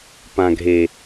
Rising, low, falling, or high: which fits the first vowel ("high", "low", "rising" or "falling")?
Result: low